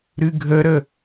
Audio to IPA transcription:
ɾ ɨ ɡʱ ə ɾ ə

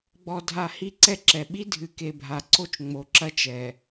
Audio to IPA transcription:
ɡ͡b ɔ˨ dʱ a˨ h i˦˨ ǀ ɛ˦ ǁ ɛ˨ ɓ i˦ dʱ ɨ˨ k e˨ bʱ a˨ ǀ o˦ t͡ʃ ŋ͡m o˨ ǁ ɐ˦ t͡ʃ ɛ˨

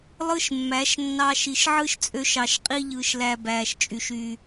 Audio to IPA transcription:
lˠ ɯ˦ ʃ mː æ˨˦ ʃ nː ɑː˧ ʃ i˨ ʃ ʕ ɯ˦ ʃ t͡sʼ ø˧ ʃ ɑ˨ ʃ qʼ i˧ ʎ ɯː˨ ʃ l æ˨ b æː˨ ʃ t͡ʃʼ y˨ ʃ y˨

